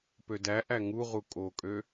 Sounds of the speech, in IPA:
pødæʔæ ŋuʁu kʼokʼø

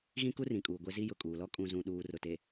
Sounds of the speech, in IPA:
ɣĩ˦ku˦rĩ˨kʼuː˨ ɡʷe˦zi˦ jʊ˨kʼuː˨lɔ˦ kʼũ˨zũ˨ ɗuː˨ rʊ˨te˨

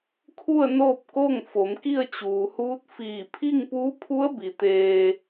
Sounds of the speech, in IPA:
kʰu˥˨ə̯noː˥˨p̚ ko˥˨ŋ fo˩˧mki˥˨ə̯t͡ɕuː˩huː˧˥t̚ fiː˧˩pʰi˥˨ŋpuː˧˥pʰu˧˥ə̯ bi˩t̪eː˧

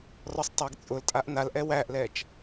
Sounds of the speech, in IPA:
rɔsˤtˤæɡt͡sʼʊl tʼaʔnal ʔɛwæʔlɛt͡ʃ

